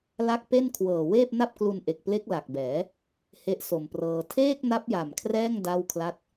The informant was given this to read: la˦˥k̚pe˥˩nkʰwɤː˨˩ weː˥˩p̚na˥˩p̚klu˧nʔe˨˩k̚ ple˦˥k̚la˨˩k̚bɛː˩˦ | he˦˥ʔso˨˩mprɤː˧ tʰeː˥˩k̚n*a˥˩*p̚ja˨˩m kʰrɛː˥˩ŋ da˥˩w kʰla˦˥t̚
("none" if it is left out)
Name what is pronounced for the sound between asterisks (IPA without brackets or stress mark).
a˦˥